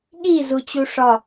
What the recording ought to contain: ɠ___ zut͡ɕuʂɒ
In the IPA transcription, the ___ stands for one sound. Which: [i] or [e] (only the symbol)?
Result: i